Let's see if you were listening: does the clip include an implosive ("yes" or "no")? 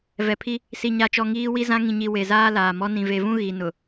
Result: no